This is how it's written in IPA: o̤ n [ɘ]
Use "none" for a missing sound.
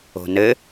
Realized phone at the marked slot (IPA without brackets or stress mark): ɘ